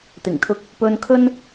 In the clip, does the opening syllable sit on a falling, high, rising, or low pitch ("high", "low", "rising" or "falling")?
low